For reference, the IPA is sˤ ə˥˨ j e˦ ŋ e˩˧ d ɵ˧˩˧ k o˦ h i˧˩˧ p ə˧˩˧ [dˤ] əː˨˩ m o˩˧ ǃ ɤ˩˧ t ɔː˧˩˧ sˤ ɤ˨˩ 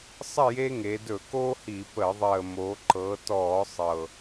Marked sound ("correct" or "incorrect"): incorrect